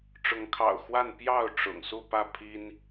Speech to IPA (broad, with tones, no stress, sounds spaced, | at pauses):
ʈ͡ʂ ʊ˨˦ ŋ kʰ ɑ̰˨˩ ʊ̯ x w a˥˨ n p j ɑ˥˨ ʊ̯ ʈ͡ʂ ʊ̰˨˩ ŋ s u˥˨ p ä˥˨ pʰ i˦ n